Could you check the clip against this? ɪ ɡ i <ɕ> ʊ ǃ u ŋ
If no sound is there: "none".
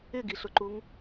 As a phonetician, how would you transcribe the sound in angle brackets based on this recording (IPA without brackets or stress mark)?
ɬ